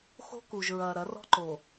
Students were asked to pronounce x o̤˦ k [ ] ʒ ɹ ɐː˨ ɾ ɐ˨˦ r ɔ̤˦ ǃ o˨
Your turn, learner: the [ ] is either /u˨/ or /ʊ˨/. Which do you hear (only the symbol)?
u˨